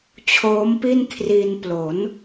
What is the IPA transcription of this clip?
t͡ɕʰoː˦˥mpi˥˩n kʰri˧n plo˩˦n

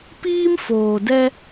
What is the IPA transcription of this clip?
piː˦mfoː˨dɛ˦

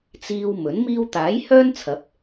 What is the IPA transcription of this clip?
t͡siː˨w mɵ˨˥nmiː˥w t̪aː˨˥jhœː˥nt͡sʰɐ˨˥p̚

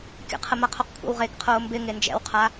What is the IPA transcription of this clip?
kʲə̰qʰəma qʰoqkʷʰə̰wʁeːkqʰoː mbɪ ŋend͡ʒɛ̰wqʰa

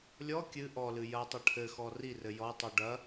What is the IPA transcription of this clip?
lʲɔ kʲɨ ʔɔlɨ jɐtˤɐ ʈʰɘxɔ rirɘ jɔtˤo ɖɐ

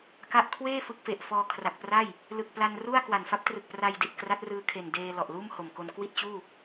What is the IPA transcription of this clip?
ka˦˥ʔ kʰweː˥˩ fɯ˦˥k̚fe˨˩ʔfɔː˧ kʰra˨˩k̚pra˥˩j | lɯ˨˩k̚pla˧nru˥˩a̯ kwa˨˩nfa˦˥p̚trɯ˨˩k̚pra˧j di˨˩t̚kra˦˥t̚ rɯː˧kʰe˨˩ndeː˧ lɔ˨˩ʔluː˥˩mho˨˩mko˧n kwi˥˩t̚t͡ɕuː˥˩

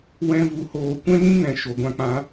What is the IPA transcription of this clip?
wɛ̃˦vu˧hoː˧ kʷɛ̃˦ŋĩ˦ŋɛ̃˨ ʃo˨ɡʷã˧k͡pã˨˦

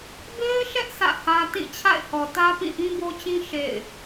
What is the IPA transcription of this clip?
be˦ɪ̯ʃɛ˦ʔ sä̰˦˨hä˦ tĩ˦˨t͡ɕʰa̰˦˨ɪ̯hɔ˨tä˦ pĩ˦˨ʔĩ˦bo˦t͡ɕĩ˦ ʃḛ˦˨ɪ̯

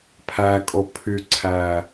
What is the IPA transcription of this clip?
pʰækʼo pʰyǀʰæ

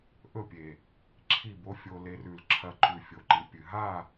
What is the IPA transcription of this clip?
ʔɵ˦˨pʲe˨ | ǁʰi˦˨bo˦ fʲo˧ le˧rʉ˨l ǁʰɐ˧ǃʉ˨ fʲo˨ǃi˨pʲɨ˨ ɦa˦˨

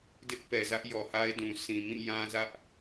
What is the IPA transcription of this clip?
dɪ˦ʔpɛ˨zä˦ʔ jɔ˨ha˦ɪ̯dũ˨ sʰĩ˨mĩ˦˨ jã˦zä˦ʔ

